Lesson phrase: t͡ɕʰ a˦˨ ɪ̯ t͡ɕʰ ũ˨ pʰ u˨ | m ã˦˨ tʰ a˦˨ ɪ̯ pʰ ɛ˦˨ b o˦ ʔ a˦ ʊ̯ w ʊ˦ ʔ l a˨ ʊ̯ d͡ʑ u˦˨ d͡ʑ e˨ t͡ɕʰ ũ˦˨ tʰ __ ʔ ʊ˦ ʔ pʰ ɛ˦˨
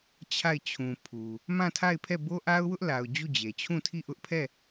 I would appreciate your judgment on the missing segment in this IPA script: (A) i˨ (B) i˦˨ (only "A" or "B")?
B